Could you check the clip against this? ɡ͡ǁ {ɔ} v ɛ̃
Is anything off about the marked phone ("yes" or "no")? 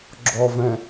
no